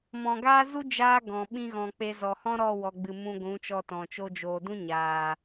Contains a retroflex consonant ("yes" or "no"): no